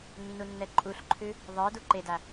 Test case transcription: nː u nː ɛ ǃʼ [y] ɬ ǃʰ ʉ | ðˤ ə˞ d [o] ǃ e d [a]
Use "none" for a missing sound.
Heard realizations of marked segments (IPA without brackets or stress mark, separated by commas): u, u, a